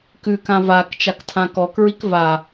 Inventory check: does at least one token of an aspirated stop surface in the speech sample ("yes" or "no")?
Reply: yes